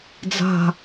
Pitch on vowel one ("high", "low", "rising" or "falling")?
falling